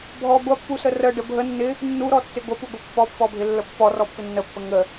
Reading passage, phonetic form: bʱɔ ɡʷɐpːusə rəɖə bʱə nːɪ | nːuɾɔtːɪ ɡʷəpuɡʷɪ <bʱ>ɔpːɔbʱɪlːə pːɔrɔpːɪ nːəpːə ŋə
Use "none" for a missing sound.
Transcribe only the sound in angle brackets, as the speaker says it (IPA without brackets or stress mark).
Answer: pː